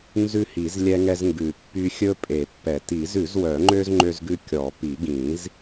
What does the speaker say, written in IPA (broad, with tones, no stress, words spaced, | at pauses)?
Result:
nzʉ˦hi˨˩˦z lʲɛ˦ŋɛ˦zŋɡʉ˨˩˦pːy˦ xʲɵ˦pʼe˨˩˦pːɛ˨˩˦ ti˨˩˦zʉ˨˩˦zwœ˨˩˦ŋ͡ǃø˦z ŋ͡ǃø˦zɡʉ˦ kʲɔ˨˩˦pi˨˩˦ɡĩ˨˩˦z